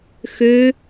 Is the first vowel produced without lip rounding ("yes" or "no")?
no